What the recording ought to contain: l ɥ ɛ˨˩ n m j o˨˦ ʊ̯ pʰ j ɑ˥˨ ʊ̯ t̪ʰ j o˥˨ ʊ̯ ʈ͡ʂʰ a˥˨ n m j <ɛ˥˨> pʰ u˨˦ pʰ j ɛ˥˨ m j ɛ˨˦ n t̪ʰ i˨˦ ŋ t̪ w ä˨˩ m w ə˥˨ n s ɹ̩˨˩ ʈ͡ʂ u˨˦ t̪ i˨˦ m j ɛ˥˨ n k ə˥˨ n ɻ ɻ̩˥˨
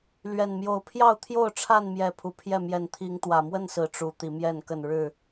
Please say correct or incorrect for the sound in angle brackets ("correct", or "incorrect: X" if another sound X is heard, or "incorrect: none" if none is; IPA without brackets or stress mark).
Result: incorrect: ɛ˨˦